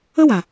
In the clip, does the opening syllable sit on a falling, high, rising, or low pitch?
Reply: high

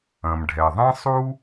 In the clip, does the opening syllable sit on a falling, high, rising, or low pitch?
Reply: low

